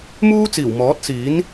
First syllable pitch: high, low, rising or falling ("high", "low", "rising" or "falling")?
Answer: high